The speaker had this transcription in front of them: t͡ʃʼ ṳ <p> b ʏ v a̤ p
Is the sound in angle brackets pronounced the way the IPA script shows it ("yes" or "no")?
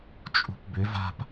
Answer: yes